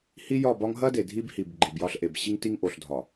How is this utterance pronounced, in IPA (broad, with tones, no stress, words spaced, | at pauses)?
hi˦jɒ˦˨bɒ˦ŋ ɦɐ˦de˨ dʱi˦bhi˨b ɡ͡ǃi˨bjɒ˦ɬʔe˨b ɕi˦ŋti˦ŋʔo˨ɬdʱɒ˨